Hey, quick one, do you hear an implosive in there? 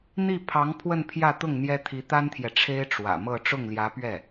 no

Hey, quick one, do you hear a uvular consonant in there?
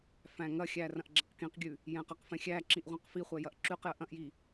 yes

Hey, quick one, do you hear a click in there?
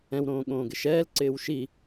yes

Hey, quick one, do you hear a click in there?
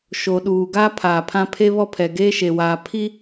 no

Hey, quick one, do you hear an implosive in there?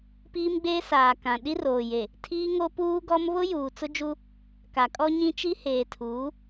yes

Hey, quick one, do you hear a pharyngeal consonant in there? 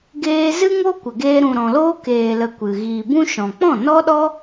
no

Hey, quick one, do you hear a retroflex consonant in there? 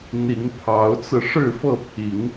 yes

